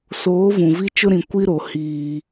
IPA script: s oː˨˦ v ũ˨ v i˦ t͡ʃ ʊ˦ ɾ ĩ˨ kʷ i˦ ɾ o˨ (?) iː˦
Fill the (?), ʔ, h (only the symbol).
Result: h